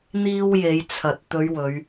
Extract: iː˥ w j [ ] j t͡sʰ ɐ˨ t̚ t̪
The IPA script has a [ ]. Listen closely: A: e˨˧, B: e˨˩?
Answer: A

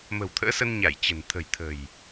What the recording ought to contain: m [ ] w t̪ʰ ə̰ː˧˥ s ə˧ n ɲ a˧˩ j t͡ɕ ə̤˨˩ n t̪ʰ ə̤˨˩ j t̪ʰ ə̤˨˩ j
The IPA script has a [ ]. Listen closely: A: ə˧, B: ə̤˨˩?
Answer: B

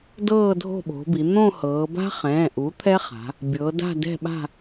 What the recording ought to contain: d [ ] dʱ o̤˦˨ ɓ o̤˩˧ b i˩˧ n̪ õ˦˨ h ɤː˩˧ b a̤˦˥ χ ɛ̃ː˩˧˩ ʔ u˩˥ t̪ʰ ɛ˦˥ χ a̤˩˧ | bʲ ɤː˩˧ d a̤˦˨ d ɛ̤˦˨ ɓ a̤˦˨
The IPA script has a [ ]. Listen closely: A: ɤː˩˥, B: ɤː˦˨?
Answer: B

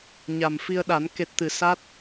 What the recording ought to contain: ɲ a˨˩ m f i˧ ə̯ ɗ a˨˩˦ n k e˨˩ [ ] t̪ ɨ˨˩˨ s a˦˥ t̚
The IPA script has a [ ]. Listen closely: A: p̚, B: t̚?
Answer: B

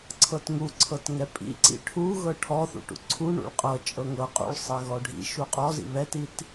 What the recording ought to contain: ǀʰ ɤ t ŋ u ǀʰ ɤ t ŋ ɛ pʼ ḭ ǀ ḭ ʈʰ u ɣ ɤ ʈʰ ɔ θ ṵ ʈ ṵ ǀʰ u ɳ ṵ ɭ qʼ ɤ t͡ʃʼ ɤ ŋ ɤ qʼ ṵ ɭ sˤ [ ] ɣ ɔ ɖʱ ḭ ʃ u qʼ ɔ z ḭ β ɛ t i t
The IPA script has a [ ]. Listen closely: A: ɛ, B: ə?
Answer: A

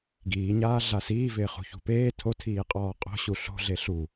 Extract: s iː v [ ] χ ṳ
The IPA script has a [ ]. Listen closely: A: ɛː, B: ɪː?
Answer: B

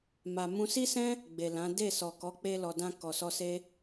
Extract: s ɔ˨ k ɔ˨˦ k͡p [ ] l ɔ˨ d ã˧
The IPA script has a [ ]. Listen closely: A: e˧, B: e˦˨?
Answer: A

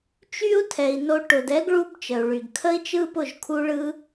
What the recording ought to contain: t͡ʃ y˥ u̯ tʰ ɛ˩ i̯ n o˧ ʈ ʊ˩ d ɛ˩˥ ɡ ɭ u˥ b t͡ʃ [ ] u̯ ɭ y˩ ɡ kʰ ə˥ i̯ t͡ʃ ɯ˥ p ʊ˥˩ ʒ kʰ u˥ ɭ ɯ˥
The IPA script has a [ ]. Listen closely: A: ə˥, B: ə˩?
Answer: B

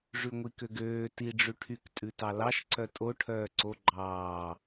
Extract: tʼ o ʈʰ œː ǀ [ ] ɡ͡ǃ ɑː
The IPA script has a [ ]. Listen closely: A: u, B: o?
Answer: B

